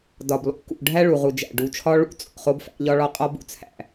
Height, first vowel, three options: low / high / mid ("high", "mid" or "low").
low